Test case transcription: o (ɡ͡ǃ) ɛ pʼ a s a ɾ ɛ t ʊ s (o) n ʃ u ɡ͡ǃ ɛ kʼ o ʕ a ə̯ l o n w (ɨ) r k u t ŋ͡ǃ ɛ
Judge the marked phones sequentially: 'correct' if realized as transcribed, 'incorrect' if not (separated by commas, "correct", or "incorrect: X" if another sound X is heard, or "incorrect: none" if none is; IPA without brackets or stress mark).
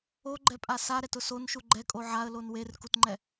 correct, correct, incorrect: e